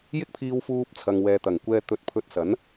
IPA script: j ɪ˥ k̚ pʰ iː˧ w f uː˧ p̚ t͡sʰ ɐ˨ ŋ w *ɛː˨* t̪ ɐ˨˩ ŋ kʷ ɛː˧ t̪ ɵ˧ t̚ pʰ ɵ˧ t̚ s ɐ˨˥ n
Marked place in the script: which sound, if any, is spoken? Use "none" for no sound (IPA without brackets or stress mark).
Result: ɛː˨